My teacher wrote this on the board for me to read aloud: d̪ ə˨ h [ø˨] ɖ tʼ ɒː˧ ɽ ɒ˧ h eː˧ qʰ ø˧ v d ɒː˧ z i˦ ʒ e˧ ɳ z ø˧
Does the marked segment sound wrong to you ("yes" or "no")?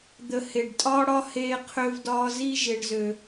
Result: yes